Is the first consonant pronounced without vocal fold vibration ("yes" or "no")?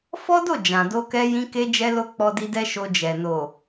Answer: yes